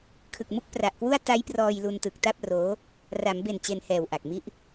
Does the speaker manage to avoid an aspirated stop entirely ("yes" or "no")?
no